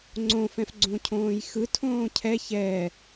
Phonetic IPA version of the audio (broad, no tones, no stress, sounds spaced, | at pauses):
ŋ͡ǀ õ f ɛ̃ f ɡ͡ǀ õ cʰ õː j x ɯ tʰ õː cʰ ɛ ç ɛ